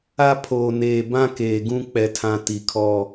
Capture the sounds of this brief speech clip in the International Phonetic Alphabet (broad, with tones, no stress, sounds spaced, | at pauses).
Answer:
a˦ pʰ oː˨ n eː˨ b ã˦ k eː˨ ɡ ũ˦ k͡p ɛ˦ tʰ ã˦ t i˨ kʰ ɔ˦